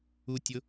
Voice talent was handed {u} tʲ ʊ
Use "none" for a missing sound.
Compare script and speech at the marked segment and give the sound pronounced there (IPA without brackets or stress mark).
u